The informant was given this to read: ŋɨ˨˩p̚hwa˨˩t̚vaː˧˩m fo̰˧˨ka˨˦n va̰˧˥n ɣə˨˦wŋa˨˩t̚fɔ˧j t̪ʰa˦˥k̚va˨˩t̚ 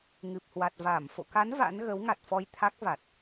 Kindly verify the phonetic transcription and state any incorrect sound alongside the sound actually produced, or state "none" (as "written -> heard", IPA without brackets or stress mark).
none